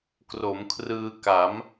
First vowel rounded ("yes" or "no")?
yes